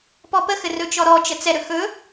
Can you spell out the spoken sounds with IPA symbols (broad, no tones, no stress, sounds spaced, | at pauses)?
p ɔ p ə x ɘ r ɵ t͡ʃ ɔ ɾ ɔ t͡ʃ ə t͡s ɛ ɾ ɵ x ɵ